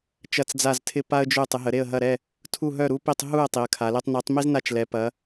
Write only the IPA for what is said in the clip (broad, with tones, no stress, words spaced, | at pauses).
t͡ʃɐ˥˨t͡sd͡za˥˨ztʰɪ˥ pa˥ə̯d͡ʒø˥˨ tˤɪ˨˦ɦə˨˦ ɾe˥˨ə̯ɦɐ˥˨ɾɛ˥˨ | tʰu˥˨ɦœ˥˨ɾu˥pi˥˨tˤ ɦu˥˨ə̯ tˤi˨˦ə̯kʰa˨˦le˥tˤ ni˨˦tˤmi˥z na˥˨t͡ʃlɛ˨˦ pɐ˨˦